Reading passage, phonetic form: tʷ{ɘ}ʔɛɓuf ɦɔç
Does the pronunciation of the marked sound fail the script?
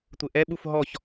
no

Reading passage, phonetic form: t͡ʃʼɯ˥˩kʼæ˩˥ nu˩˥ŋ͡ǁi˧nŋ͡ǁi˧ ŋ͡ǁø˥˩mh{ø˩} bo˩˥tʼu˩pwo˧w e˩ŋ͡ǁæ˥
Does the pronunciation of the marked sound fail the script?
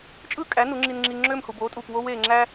yes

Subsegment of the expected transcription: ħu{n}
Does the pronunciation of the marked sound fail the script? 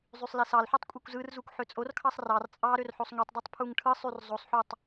yes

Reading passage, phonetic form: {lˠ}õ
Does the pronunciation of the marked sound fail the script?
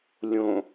yes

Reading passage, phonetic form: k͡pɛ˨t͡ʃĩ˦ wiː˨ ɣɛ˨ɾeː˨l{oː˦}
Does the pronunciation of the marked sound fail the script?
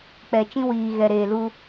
yes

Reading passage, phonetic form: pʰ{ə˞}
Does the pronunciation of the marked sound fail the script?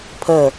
yes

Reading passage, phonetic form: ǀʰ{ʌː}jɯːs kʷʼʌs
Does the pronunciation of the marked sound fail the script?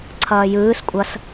no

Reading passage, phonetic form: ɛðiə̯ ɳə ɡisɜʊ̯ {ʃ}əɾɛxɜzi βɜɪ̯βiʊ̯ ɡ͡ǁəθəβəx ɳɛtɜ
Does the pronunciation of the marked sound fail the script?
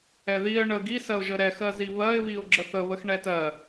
yes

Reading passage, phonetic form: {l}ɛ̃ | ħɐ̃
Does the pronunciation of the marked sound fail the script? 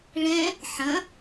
yes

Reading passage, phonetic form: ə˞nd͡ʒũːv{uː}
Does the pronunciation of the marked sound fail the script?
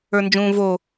yes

